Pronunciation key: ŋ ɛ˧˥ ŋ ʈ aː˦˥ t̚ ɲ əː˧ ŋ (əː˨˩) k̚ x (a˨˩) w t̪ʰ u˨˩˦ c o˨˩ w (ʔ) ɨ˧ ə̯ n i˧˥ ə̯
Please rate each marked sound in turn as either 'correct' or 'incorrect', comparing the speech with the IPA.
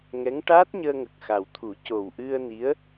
incorrect, correct, correct

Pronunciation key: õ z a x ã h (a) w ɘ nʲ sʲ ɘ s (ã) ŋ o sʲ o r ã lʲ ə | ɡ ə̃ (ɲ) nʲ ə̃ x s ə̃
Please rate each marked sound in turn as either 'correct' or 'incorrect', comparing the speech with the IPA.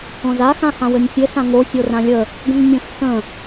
incorrect, correct, incorrect

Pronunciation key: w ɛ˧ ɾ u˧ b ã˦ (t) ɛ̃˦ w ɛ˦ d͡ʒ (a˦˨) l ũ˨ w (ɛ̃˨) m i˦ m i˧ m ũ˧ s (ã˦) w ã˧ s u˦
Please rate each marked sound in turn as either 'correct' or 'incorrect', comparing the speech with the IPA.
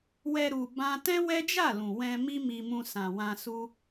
correct, correct, incorrect, incorrect

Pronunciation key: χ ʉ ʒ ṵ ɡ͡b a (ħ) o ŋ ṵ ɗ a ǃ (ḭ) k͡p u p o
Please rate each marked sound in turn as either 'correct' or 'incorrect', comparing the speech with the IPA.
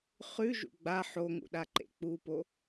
correct, incorrect

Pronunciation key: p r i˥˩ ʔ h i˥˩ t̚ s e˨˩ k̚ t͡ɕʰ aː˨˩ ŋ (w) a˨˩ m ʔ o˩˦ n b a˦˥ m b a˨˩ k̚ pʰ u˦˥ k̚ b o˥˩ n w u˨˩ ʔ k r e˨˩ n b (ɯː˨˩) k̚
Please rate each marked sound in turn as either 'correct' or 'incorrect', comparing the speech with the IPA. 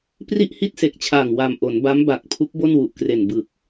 correct, incorrect

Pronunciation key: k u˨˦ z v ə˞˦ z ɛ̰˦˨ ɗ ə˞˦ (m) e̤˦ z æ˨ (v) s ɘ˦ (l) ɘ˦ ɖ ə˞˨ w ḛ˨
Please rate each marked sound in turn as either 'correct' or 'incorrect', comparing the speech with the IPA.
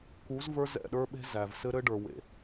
incorrect, correct, incorrect

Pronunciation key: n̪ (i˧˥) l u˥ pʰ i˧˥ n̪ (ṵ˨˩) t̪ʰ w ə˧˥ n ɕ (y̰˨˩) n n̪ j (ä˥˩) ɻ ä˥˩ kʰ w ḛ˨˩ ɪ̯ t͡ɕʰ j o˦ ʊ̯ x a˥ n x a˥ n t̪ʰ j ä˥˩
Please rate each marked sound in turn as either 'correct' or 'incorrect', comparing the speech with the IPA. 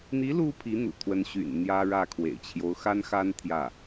correct, correct, correct, incorrect

